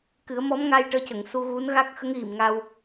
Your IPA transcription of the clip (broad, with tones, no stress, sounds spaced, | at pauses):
k ɨ˨˩˦ ə̯ m ɔ˧˥ m ŋ a˧ j ʈ əː˧˥ c ə˨˩˨ ŋ s u˧ ɣ u˧˥ n ɣ a˦˥ k̚ x ə˧˥ ŋ ɣ i˨˩˨ m ŋ a˧ w